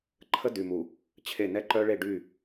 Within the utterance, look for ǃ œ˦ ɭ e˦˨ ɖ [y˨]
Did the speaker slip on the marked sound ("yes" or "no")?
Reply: yes